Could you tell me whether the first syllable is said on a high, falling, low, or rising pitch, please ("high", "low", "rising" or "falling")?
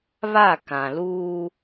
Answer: falling